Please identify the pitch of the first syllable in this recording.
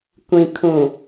low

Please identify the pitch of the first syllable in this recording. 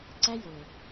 high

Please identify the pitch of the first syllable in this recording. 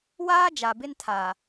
high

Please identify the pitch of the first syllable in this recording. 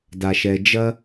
low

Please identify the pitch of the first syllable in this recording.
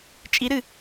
rising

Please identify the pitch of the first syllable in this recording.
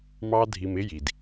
high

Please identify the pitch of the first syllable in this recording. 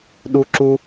high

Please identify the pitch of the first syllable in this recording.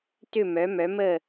falling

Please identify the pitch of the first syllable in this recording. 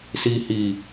low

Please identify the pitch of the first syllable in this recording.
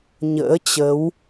rising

